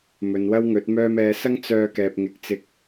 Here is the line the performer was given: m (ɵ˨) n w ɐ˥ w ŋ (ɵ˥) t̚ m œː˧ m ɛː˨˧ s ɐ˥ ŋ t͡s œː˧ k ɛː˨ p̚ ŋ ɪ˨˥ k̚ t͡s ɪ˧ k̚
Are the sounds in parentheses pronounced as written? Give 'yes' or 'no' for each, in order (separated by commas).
yes, no